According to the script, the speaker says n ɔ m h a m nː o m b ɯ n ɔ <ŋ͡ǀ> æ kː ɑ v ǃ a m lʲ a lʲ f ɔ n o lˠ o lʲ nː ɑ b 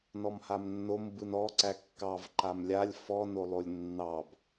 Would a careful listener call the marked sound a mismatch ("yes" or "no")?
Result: yes